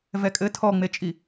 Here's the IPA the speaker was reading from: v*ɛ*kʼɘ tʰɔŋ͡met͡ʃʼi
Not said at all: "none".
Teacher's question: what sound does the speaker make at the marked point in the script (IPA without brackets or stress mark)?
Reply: ɛ